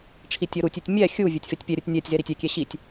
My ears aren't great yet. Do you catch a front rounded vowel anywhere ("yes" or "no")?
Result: no